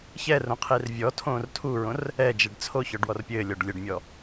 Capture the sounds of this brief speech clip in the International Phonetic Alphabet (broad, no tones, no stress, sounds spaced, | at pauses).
ç ɛ r õ qʰ i r vʲ ɔ tʰ õː r tʰ u ɹ õ r | ɛ d͡ʒ e ɖ t͡sʰ o ç ɔ ɖ w ɔ r pʲ ɘː lʲ ɔ ɖ lʲ ɘ ɖ mʲ ɔ